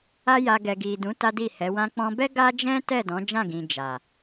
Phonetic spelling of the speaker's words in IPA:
a˦ja˧ ɡɛ˨ɡi˨dũ˨˦ ta˦di˦˨hɛ˨˦ wã˧k͡pɔ̃˧bɛ˦ ɡa˦d͡ʒɛ̃˦ tɛ˦˨dɔ̃˨˦d͡ʒã˦˨ɡĩ˨ d͡ʒa˨

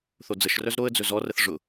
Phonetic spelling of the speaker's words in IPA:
θod͡zəʃrœz ɾoə̯d͡zɵ zɔrəθ ʐʊ

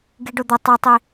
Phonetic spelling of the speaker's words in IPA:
ɡiɖod̪ʊ tˤɛtˤi

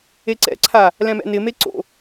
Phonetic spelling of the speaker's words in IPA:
eǀɛ̰ǀʰa | lɛ̃mɛ̰nɪme ǀo̰

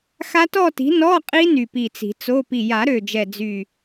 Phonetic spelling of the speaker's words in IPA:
xa˦˥tɔ˥˧ti̤˨˥ nɔ˧˥˧ qʼi˦˥ny˨˩pi˨˩ t͡si̤˨˩˦t͡so˧˥˧ pi˨˩ja˨˩˦ɾø˨˩d͡ʒɛ˨˩ d͡zy˨˩

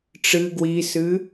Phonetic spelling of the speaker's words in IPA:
ʈ͡ʂɨ ɡwisɨ

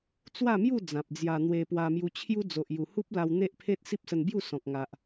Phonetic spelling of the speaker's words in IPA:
t͡swa˥˧mju˥˧ d͡zã˨p̚d͡zja˧n̪we˧ pwa˧mju˧t͡ɕʰju˦ d͡zo˨ʔju˨˩hu˦p̚la˧w n̪e˦ʔpʰe˦t̚ si˦p̚sə˧nbju˥˧sɔ̃˨k̚ ŋa˨ʔ

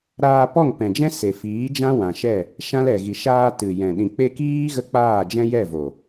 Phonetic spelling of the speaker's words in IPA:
ɾaː˧pɔ˦˨ŋpɛ̃˨d͡ʒɛ̃˦ se˨fiː˨˦d͡ʒã˦ wã˨ʃɛ˦˨ | ʃã˦lɛ˨ ɣi˨ʃaː˧ tɨ˨jɛ̃˨ ɗĩ˨k͡pe˧kiː˦ ɣə˦k͡paː˦˨d͡ʒɛ̃˦jɛ˦˨ vo˨

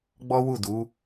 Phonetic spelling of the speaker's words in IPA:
ɡ͡bɔ˦wu˦˨du˨˦

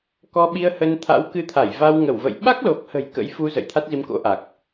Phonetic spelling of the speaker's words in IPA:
kɔ˧ɓi˧ə̯hə˧n t̪ʰa̰˧˥wkɨ˧t̪ʰa˧˩jva˧w ŋə˧˩wvə̰˧˨j ɓa˦˥k̚lo˨˩k̚hə̤˨˩j kə̰˧˥jfu˧ zə̰˧˨jt̪ʰa˦˥t̚zi˧mko̰˧˥ ʔa˨˩k̚

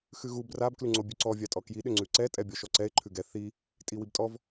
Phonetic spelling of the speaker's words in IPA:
xʉɣu brab klʉŋ͡ǀobʲʉǀɔ vʲatʼɔkji ɗʏŋ͡ǀʉǀɛ tʼɛbʲɔʃɔǀɛɪ̯ ǃʰʉɡɛ θi | tʼiwibtʼɔv

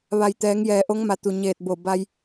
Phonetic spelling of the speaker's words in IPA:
ʋa˩jt̪ɛː˩˧ŋ jɛː˩ʔo˧˥ŋma˩˧ t̪u˩ɲeː˧˩t̚bo˧˩ ba˧j

